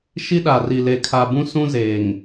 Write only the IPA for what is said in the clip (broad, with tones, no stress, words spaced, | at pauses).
ʃi˦ɗa˨ri˨ le˨kʰa˨bũ˦sũ˦ zeː˨ŋ